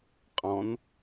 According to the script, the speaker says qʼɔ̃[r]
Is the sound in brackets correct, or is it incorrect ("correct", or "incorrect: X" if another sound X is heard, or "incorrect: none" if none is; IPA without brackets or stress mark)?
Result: incorrect: n